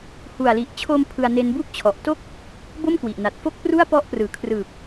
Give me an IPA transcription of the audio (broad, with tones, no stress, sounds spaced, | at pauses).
h u˨˩ a̯ l i˨˩ ʔ t͡ɕʰ o˧ m pʰ ɯ˧ a̯ n e˦˥ n b u˦˥ k̚ t͡ɕʰ ɔ˨˩ ʔ t o˥˩ k̚ | b o˥˩ m k w i˨˩ ʔ n a˨˩ t̚ f o˥˩ k̚ p r u˥˩ a̯ p ɔ˦˥ ʔ p r ɯː˩˦ kʰ r ɯː˨˩ p̚